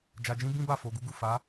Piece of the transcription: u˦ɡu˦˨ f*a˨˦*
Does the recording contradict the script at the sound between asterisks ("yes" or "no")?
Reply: no